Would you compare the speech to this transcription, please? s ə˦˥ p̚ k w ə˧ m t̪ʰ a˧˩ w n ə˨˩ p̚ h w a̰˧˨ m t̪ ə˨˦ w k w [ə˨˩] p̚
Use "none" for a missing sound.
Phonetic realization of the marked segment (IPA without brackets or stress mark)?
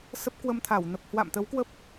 ə˦˥